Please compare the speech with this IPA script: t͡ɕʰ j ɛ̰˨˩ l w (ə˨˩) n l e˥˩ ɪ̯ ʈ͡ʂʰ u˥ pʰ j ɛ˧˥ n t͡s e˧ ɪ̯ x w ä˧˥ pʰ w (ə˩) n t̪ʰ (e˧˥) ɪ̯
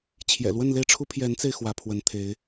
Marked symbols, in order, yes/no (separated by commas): no, no, yes